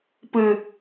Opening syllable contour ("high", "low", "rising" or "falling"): low